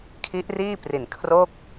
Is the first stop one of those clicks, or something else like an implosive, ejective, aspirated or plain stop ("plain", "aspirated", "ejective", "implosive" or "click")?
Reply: aspirated